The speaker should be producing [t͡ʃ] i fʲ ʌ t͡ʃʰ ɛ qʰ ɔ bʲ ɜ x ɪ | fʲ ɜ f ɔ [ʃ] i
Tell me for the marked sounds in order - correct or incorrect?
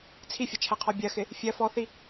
incorrect, incorrect

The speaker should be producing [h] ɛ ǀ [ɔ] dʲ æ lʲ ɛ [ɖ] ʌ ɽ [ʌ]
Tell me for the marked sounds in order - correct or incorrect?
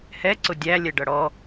correct, incorrect, correct, incorrect

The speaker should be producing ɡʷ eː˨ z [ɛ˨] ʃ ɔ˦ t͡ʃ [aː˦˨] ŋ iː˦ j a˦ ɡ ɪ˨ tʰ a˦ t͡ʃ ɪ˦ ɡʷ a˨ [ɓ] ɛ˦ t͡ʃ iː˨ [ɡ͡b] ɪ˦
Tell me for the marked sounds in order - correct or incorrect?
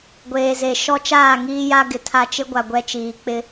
incorrect, correct, incorrect, incorrect

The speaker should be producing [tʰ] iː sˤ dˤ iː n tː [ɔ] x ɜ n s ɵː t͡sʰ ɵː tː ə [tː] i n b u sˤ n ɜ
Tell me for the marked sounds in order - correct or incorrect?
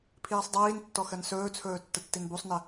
incorrect, correct, correct

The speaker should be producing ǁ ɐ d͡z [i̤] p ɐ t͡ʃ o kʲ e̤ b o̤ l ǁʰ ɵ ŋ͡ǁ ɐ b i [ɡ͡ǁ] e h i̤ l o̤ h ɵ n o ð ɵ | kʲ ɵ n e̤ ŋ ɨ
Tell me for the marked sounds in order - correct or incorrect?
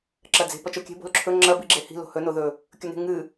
incorrect, correct

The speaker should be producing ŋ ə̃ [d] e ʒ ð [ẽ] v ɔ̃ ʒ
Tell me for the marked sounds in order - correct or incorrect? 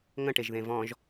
incorrect, correct

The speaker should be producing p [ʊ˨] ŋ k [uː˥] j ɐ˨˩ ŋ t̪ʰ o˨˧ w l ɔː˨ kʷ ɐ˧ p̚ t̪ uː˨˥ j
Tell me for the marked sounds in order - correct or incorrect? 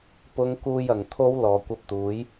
incorrect, incorrect

